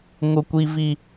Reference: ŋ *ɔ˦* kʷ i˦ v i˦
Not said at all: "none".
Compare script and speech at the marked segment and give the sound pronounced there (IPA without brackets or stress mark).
ʊ˦